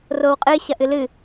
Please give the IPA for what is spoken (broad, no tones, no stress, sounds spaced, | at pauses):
r o w qʼ ɨ ɕ ɐ ʔ ɨ l ɨ